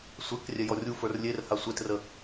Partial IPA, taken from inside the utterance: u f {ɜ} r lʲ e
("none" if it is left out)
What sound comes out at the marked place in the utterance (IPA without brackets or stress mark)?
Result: ə˞